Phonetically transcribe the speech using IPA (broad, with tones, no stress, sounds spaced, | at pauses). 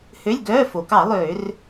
h ø˧˥˧ lʲ ɡ œː˧˥˧ f o˩ k ɑ˧˩˧ lˠ øː˧˩˧ r